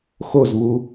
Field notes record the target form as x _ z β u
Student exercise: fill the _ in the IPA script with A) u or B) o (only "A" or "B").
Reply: B